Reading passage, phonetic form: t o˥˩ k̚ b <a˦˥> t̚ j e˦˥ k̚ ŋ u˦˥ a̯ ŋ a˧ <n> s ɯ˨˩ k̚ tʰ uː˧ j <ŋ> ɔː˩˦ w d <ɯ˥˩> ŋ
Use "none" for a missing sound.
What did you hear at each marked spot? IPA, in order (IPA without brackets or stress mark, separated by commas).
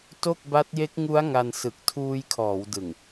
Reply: a˦˥, n, kʰ, ɯ˨˩